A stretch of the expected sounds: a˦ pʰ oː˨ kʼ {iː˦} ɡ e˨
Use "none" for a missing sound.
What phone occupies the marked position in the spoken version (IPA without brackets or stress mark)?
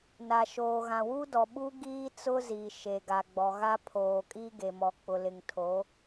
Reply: i˦